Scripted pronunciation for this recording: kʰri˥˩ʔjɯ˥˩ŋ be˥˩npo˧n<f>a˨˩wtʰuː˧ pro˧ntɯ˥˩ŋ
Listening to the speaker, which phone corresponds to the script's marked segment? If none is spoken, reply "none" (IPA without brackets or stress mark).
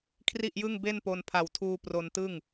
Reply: pʰ